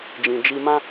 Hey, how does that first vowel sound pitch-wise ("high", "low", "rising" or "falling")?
low